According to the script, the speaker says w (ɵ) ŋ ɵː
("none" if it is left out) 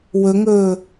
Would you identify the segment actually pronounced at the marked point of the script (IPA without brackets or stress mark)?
ɵ